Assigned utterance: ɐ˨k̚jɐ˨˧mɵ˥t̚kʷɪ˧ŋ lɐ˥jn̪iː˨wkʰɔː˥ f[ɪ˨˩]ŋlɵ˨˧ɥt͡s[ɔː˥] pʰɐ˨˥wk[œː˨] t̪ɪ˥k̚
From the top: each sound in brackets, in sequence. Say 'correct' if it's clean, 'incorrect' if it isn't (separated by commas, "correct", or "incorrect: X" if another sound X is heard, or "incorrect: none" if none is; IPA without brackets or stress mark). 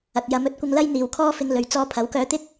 incorrect: ɪ˧, incorrect: ɔː˧, incorrect: œː˧